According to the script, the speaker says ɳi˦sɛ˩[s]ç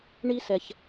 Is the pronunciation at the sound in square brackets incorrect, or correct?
incorrect